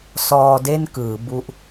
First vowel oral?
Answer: yes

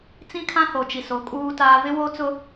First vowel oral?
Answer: no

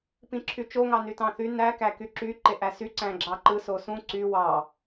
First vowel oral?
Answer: no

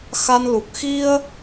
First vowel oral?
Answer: yes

